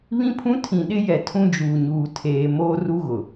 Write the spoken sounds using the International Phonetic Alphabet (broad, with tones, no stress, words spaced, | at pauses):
βĩ˦pʰũ˦tʰĩ˨ ɗɪ˦jɛ˨ tʰũ˦d͡ʒuː˨ɲuː˨ tʰeː˨ moː˦ ru˦ɣʊ˨